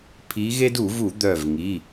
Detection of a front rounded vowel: present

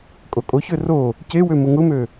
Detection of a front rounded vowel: present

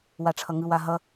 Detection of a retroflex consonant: present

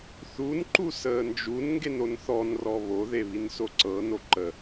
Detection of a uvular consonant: absent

